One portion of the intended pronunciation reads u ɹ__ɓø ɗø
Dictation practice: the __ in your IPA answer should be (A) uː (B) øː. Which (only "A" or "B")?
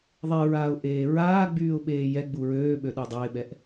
B